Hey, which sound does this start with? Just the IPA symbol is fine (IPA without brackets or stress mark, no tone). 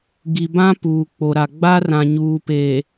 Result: ɡ